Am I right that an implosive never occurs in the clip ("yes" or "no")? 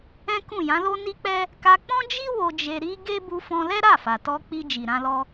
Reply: yes